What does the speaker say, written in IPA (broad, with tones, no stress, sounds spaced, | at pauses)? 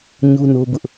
ɲ u˦ n o˦ b ʊ˦ ʔ